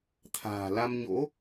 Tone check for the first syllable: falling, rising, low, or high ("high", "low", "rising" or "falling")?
low